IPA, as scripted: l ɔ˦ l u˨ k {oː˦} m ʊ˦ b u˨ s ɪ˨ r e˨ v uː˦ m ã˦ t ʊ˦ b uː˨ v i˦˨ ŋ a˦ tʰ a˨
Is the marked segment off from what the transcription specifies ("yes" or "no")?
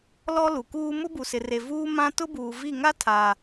yes